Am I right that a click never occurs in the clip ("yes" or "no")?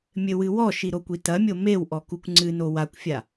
no